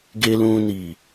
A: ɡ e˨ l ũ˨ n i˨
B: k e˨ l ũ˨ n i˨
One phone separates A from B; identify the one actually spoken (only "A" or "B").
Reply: A